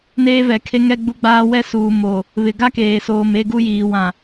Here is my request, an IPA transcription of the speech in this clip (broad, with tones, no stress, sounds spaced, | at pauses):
n eː˦ v ɛ˨ kʰ e˦ ŋ ɛ˦ ɡ͡b u˦ ɡ͡b aː˦ w ɛ˦ s uː˨ m o˨ | β ɪ˨ ɡ a˦ k eː˨ s oː˨ m e˦ ɡ u˦ j iː˨ w ã˨